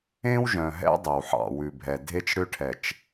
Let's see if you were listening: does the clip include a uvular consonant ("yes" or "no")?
no